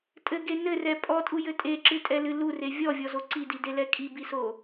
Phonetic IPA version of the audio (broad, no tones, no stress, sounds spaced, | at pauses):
tʼ ɘ ɡ e n ɘ r ɛ pʼ ɔ tʼ u j ɘ tʼ e ǁ ɨ tʼ ɛ l ɨ l u r e vʲ ɔ vʲ ɔ z o ǀ i d i d e l ɛ kʼ i b i s o